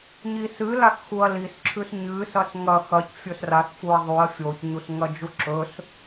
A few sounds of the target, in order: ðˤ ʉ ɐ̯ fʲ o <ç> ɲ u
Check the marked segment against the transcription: correct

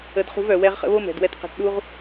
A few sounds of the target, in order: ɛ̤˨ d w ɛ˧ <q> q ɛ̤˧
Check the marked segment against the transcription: incorrect: t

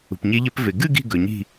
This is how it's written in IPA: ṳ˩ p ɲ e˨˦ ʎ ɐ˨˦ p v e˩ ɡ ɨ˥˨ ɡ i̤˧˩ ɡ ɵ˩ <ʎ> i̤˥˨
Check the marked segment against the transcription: incorrect: ɲ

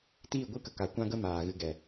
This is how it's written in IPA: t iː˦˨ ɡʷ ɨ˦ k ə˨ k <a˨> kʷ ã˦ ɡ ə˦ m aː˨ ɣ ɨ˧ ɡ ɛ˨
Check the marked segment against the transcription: correct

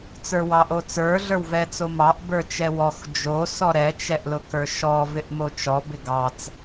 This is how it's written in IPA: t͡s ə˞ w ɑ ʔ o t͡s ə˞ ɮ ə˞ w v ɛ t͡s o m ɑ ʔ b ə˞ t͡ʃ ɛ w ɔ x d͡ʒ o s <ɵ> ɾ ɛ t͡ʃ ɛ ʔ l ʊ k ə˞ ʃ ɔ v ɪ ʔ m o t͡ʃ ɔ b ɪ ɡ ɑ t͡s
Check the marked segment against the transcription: incorrect: ɔ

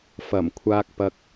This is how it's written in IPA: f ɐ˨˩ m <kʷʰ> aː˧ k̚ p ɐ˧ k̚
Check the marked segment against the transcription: correct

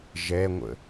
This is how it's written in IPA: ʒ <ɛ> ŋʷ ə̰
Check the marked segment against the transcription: correct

